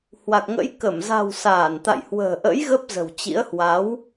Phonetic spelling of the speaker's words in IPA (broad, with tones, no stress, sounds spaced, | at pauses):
h w a˨˩ k̚ ŋ ə̰˧˥ j k ə˧˩ m z a̤˨˩ w s aː˧˩ n t̪ a̰˧˨ j h w ə̤ː˨˩ ʔ ə̰˧˥ j ɣ ə˦˥ p̚ z ə̤˨˩ w t͡ɕ ḭ˧˥ ə̯ h w a˨˦ w